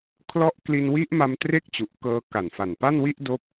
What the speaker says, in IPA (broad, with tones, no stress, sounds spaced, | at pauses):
kʰ l ɔ˥˩ ʔ k l i˧ n w i˦˥ ʔ m a˧ m t r e˥˩ k̚ t͡ɕ u˨˩ ʔ k ɤː˧ k a˨˩ n f a˨˩ n p a˥˩ n w i˥˩ ʔ d o˦˥ k̚